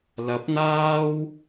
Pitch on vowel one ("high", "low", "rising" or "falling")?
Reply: rising